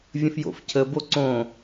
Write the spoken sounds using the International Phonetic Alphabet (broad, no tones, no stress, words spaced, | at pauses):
vʲə̃fjo̰f cʰə boǀõ